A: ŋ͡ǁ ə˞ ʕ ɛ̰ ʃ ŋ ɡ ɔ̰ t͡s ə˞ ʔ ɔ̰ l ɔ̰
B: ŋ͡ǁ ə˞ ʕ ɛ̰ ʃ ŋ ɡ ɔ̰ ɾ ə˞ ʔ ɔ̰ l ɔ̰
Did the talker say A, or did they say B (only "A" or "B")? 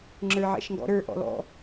B